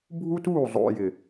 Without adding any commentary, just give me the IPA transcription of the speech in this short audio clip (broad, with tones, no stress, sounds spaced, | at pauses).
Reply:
bʱ u˦ t uː˦˨ zˤ o̰˨ j ɪ˨